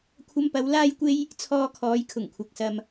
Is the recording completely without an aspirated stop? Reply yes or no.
no